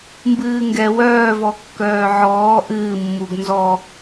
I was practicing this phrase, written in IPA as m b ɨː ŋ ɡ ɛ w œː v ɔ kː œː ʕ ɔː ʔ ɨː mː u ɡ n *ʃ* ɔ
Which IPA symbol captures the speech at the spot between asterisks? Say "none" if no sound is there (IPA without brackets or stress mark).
z